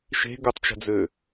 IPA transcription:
ʃe̤ ɡutˤt͡ʃə̤d͡zø

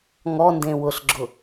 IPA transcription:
ŋɔndẽ wʊɬɡ͡ǁʊ

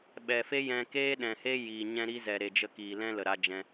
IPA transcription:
ɓɛ˨fe˦jɛ̃˧ keː˦ɗɛ̃˨he˦ ji˨ ɲɛ̃˧ɾi˧ zɛ˨ɾe˨d͡ʒə˧kiː˨ lɛ̃˦lə˨ɾa˧d͡ʒɛ̃˧

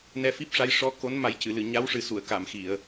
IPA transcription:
nɛ˧fi˦˥p̚ʂa˧˥j ʂɔ˧˥ko˧˥n ma˨˩˦jcɨ˨˩˨lɨ˨˩˨ ɲa˧˥wʂɨ˨˩su˨˩˨ə̯ ka˨˩˨mxi˨˩˨ə̯

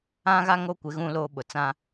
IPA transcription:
ã˦ɣa˦ ŋo˦kʷɪ˨˦ ɣũ˦loː˦ ɓʊ˨t͡sã˦

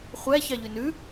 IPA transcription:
χʷæçɑʎy nʉ

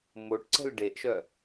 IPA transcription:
moʈǀə̤l ɖeʔʃœ

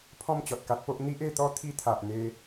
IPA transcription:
pʰɔ̃˥˧mt͡ɕɔ˨t̚ka˦t̚po˦ʔ n̪i˦ʔe˥˧t̪ɔ˦ t̪ʰi˧t̪ʰa˨ʔ n̪e˧

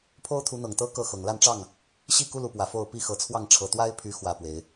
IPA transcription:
pʰo˦ʊ̯t̪ʰu˨˦ n̪ɤ˨˩ŋt̪ɤ˦ kɤ˥˨xɤ˨˩ŋ la˥˨nʈ͡ʂɑ˥˨ŋ | ɕi˥˨ku˦ lu˨˦pwä˨˩fo˥˨ʊ̯ pi˥˨xɤ˨˦t͡sʰwɑ˥˨ŋ ʈ͡ʂʰɤ˨˩t̪wa˦ɪ̯pʰy˨˦ xwä˥˨pwe˨˦ɪ̯

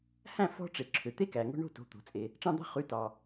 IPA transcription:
hæ̃˥˩fɔ̤˦ʈ͡ʂe˩ ǁʰø˩t̪e˥˩kæ˩ ŋo̤˦ ɳo̤˥˩to̤˩˧˩t̪o̤˩t͡sʼe˩ | ʈ͡ʂɑ̃˦d̪ɑ̤˦ χʉ˩˧˩tɑ˩

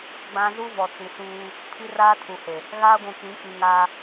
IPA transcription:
ɡ͡bã˦ zu˦vɔ˨ t͡si˨suː˦ | pʰi˦raː˦tʰu˨he˨ | ɣaː˦ɡʷũ˨kĩ˨˦k͡pi˨ ŋaː˦

